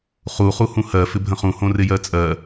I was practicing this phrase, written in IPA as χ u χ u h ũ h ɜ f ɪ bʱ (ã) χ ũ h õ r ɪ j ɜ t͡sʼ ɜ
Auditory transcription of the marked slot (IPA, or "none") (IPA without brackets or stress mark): ə̃